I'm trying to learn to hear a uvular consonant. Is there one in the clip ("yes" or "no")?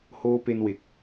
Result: no